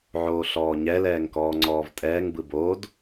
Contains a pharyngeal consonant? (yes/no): yes